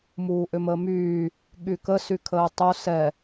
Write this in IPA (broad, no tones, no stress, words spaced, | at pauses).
muːʔʏməːmyː | ɠykə sykʰəːtˤo sɛ